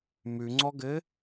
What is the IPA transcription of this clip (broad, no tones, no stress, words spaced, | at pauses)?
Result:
mʉŋ͡ǀɔɡɘ